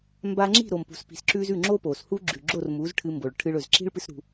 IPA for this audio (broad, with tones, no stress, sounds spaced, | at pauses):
m b a˧ ŋ͡ǁ i̤˥˩ ɾ o˩ m p ṳ˩ s p i̤˩ s ǁ ʉ˧ z ʉ˥˩ ŋ͡ǁ o˥ p o˩ s h u˥ ɡ͡ǁ ʉ˩ ɡ͡ǁ o˥˩ r m u˩˥ z ʈʰ ɨ˧ m b o˩ ɭ ʈʰ ɨ˧ ɭ ɵ˩ z ǁ i̤˥ ɭ p ɨ˥ s ɾ ṳ˧